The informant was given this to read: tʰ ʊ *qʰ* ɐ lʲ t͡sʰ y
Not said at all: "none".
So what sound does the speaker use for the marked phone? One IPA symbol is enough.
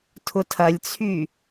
tʰ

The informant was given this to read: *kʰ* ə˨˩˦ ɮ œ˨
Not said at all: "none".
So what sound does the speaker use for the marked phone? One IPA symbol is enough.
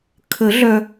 kʰ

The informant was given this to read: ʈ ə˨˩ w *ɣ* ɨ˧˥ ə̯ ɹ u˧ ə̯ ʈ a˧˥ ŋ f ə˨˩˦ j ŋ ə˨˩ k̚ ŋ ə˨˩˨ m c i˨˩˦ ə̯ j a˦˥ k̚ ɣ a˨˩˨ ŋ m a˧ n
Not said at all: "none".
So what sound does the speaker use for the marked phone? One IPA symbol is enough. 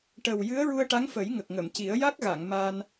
j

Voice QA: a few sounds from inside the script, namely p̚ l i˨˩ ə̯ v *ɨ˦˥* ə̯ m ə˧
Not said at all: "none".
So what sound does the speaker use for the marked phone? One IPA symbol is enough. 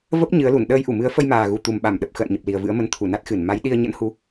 ɨ̰˧˥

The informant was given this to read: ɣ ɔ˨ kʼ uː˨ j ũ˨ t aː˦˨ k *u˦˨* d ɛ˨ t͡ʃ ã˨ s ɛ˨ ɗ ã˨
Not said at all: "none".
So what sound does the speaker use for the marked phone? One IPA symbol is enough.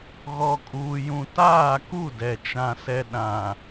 u˦˨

